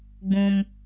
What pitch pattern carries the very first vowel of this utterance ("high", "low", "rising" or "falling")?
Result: high